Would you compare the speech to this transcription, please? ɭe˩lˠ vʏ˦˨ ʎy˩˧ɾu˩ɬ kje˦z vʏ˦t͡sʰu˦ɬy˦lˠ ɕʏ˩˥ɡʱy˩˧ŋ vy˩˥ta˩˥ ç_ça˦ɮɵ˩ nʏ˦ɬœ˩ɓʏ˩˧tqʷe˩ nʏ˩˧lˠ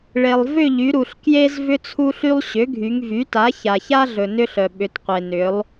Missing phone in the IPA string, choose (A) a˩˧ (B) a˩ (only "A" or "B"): B